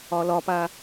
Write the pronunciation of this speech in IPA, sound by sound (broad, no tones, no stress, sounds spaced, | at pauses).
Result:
ɒ l ɒ p a